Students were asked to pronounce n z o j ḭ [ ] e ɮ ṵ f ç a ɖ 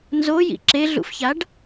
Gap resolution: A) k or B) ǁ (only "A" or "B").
B